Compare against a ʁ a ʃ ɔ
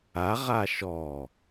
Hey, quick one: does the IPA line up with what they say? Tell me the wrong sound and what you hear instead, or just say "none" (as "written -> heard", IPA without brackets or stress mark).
none